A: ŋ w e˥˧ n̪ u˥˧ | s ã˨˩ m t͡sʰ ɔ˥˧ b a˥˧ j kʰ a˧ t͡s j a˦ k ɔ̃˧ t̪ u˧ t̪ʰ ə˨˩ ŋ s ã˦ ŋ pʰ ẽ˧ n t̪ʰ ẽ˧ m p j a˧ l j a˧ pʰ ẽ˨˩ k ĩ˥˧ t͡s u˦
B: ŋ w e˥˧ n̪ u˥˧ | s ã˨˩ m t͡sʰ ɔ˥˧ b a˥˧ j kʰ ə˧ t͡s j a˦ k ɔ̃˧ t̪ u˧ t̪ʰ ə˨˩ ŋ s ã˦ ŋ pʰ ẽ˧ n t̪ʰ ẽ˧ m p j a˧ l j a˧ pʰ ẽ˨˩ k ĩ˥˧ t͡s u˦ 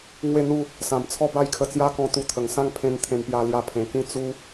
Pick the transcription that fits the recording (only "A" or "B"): B